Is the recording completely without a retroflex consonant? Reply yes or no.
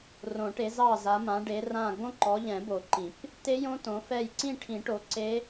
no